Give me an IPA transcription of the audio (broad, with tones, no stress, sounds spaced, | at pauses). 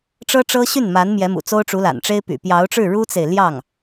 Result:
ʈ͡ʂ ɤ˥ ʈ͡ʂ ɤ˥ ɕ y˥˩ n m a˧˥ n m j ɛ˧˥ m ṵ˨˩ t͡s o˥ ʊ̯ ʈ͡ʂ u˧˥ l a̰˨˩ n ʈ͡ʂ e˥ ɪ̯ p y̰˨˩ p j ɑ˧˥ ʊ̯ ʈ͡ʂ ɻ̩˥˩ ɻ u˥ t͡s e˨ ɪ̯ l j ɑ˥˩ ŋ